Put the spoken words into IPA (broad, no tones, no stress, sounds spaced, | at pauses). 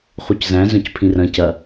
χ u c z æ̃ z œ̃ c pʰ ĩ r ɐ̃ c ɐ